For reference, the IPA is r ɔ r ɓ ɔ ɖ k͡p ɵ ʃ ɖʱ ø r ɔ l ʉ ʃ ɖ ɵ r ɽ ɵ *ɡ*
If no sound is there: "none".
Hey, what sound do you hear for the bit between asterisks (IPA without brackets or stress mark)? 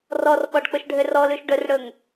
ŋ